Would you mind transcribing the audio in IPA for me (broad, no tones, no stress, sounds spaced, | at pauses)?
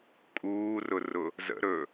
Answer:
kʼ uː r ʊ r ʊ | z ə̰ ɾ ɵ